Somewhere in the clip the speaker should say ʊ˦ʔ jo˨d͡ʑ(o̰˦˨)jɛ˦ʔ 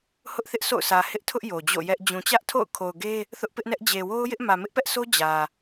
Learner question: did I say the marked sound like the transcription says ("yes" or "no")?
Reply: yes